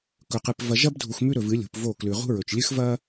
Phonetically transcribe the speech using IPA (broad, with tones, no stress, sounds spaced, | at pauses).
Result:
k ɵ˨ q ɨ˨ p v ɐ˨ ʒ ɐ˦ b dʱ u˨ x m ʉ˦ ɾ ɵ˨ v ɨ˨˦ lʲ ṳ˨ p v o˦˨ k l ʉ˨ ʁ ṳ˦ ɹ ɵ˨ t͡ʃ lʲ ɨ˦ x v ɐ˦